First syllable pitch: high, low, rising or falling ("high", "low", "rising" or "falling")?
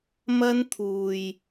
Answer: high